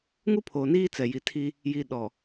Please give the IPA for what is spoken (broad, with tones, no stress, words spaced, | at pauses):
ŋu˦pʰoː˨niː˦ t͡sɛ˨ji˨tʰi˦ | ji˨ɗɔ˨